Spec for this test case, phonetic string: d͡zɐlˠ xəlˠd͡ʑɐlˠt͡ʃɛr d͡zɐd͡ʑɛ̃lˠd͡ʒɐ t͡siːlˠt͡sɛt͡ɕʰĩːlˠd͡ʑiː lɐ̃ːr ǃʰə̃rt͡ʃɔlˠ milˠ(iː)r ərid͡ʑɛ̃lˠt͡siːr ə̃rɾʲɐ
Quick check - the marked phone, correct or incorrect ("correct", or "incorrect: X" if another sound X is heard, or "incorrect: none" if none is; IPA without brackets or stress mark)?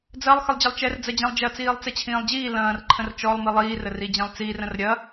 correct